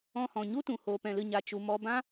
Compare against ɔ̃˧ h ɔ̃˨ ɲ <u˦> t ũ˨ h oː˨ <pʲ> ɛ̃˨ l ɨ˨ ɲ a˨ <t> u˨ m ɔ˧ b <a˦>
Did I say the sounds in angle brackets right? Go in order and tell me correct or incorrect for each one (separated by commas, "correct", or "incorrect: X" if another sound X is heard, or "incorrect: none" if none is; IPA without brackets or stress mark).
correct, incorrect: p, incorrect: t͡ʃ, incorrect: ã˦